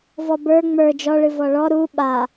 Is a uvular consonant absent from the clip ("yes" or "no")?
yes